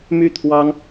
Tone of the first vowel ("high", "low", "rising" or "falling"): falling